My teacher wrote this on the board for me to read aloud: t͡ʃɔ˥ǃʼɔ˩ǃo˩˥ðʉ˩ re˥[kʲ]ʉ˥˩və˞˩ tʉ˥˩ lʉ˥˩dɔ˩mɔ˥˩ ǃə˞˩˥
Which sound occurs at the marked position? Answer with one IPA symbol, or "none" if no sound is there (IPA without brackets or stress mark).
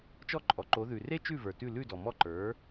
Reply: t͡ʃ